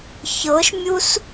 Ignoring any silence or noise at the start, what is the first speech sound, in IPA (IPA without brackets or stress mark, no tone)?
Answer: ç